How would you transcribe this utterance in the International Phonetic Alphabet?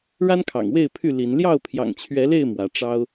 ɻa˦nkʰɑ̰˨˩ŋwe˥˨ɪ̯pʰy˥˨ li˨˦n ljɑ˥˨ʊ̯pʰjɑ̰˨˩ŋt͡ɕʰɥɛ˨˦le˥˨ɪ̯ mwä˨˦ ʈ͡ʂɑ˦ʊ̯

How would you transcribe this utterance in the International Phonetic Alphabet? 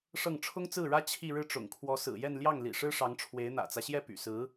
ʂɤ˥˩ŋ ʈ͡ʂʰʊ˥ŋt͡sɹ̩˥˩ɻä˥ t͡ɕʰi˥˧ ɻɻ̩˥˩ ʈ͡ʂʊ̰˨˩ŋkʰwɔ˧˥sɹ̩˨˩jɛ˥˧n ljɑ˥˩ŋlḭ˨˩ ʂɻ̩˥ʂɑ˧˥ŋʈ͡ʂʰwe˧˥ɪ̯ n̪ä̰˨˩t͡sä˦ɕjɛ˥˩ py̰˨˩sɹ̩˧˥

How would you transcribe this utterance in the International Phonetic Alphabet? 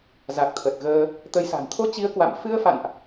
za˨˩k̚t̪ʰə˨˩t̚ɣəː˧ | t̪ə˨˦jsa̤˨˩n t̪ʰo˧t͡ɕi˨˦ə̯ kwa̰˧˨m fɨ˧ə̯fa̰˧˨nʔ

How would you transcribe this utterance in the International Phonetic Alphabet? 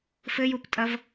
fɘjuptʼɐv

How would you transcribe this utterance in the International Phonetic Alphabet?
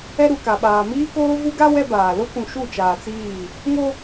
ɛ˦ɾu˨ ka˨ɓaː˨ miː˦koː˦ vu˦ɡa˦ wɛ˦baː˨ lo˦kũ˨ ʃu˦˨t͡ʃaː˨t͡siː˦˨ | ŋo˦

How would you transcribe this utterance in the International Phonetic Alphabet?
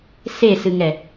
sesɨŋɛ

